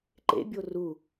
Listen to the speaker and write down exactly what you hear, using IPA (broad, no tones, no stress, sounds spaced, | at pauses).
ǃ ḛ bʲ o r u